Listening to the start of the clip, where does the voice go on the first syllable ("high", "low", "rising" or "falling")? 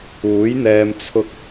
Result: rising